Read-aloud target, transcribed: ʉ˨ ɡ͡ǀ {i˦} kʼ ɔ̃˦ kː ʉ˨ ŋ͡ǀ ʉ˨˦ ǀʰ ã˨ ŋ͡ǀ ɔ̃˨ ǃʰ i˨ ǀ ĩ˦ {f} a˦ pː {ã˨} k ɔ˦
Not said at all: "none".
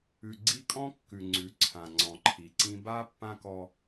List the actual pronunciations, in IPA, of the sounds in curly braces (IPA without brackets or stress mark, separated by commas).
i˦, b, ã˦